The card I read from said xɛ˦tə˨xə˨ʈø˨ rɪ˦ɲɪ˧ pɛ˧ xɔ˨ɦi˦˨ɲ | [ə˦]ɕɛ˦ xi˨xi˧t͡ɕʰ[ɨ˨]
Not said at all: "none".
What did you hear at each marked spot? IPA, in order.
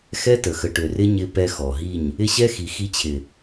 ɪ˦, ɪ˨

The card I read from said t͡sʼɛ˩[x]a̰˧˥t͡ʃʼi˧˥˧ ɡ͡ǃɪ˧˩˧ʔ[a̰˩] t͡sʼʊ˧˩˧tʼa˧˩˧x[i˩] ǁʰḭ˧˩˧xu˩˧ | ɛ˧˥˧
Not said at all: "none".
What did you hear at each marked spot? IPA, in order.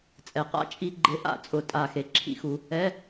q, a̰˧˩˧, e˩

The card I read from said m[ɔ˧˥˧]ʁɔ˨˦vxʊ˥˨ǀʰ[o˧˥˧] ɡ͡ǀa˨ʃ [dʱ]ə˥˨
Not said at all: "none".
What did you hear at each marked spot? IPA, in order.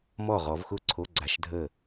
ɔ˥˨, o˧˥˧, dʱ

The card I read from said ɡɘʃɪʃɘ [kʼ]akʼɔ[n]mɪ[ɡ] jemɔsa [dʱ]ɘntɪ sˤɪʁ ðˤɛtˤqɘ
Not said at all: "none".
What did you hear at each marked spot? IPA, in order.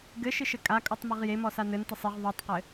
kʼ, tˤ, ʁ, n

